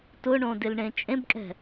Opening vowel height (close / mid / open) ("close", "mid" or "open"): close